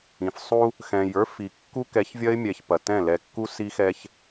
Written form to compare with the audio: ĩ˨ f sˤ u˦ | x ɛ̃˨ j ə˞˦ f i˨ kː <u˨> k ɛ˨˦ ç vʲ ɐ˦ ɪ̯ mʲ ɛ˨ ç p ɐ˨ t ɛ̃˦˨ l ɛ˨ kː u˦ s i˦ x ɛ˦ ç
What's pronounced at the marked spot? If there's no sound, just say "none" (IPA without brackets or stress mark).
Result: u˦